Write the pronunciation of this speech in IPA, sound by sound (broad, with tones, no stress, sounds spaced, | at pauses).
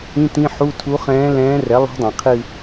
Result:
ĩ˧˥˧ t ĩ˧˥˧ ħ u˧˥˧ tʰ u˧˥ χ ɛ̃ː˧˥ l ɛ̃ː˧˥ r ɛ˩˥ lˠ ṳ˧˥ dˤ ɛ̃˩ qʰ ɨ˦˨